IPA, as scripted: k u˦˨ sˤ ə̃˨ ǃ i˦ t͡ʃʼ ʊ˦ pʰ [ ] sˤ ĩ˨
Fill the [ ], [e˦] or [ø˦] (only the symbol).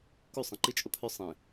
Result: ø˦